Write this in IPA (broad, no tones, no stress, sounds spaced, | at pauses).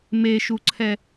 m e ʃ u ǀʰ ɛ